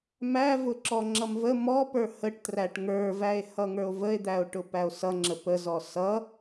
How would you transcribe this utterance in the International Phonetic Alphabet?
m æ v ʊ ǁ ɔ ŋ͡ǁ ʌ m v ə m ɔ p ə˞ h ə ʈ t r æ ʈ ŋ ə˞ v æ e̯ h ʌ ŋ ə˞ o̯ v ə e̯ d̪ æ o̯ ʈ ʊ p æ o̯ s ʌ ŋ͡ǁ ə p ə z ɔ s ʌ

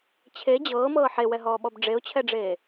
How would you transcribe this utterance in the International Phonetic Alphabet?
t͡ɕʰ e d͡ʑ ɤː m ɤː ħ e w ɛ ɦ ɔː ɓ ɔ b ɖ͡ʐ e ʊ̯ t͡ɕʰ ɛ ɖ͡ʐ eː

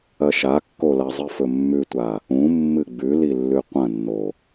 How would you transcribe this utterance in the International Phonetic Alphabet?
ɐ ʃ a kː o l ɐ zˤ ɨ f ɵ mː ʉ tʷ a | ũ mː ɨ ɡ͡b ʉ l i lː ʉ qʷ ɐ̃ nː o

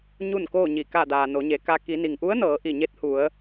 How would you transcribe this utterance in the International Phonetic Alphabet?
ɲ u˥˨ n k oː˥˨ ɲ i˧˩ k a˧˩ d aː˩ n o˩˧ ɲ e˩˧ k a˧ k i˩˧ n i˩ ŋ ʔ u˧˥ ə̯ n ɤː˩˧ ʔ i˧˩ ɲ e˧˥ t̚ h u˩˧ ə̯

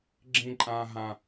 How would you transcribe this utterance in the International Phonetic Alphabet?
ɡ͡ǁ ĩ˥ ǃʼ ãː˥ ɦ ã˥

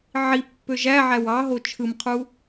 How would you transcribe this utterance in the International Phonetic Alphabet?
ʕ i pː ø ʒ æ ʕ æ w ɑ ɦ o t͡ʃʰ ɯ m qʰ u

